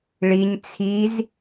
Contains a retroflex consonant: yes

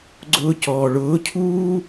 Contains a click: yes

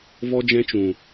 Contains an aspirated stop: no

